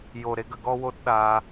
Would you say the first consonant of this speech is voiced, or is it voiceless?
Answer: voiced